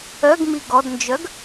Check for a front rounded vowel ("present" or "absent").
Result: present